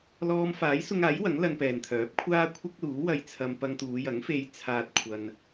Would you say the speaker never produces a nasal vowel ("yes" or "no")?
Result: yes